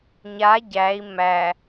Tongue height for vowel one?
low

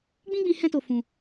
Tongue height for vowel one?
high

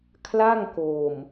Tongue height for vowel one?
low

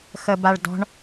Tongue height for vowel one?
mid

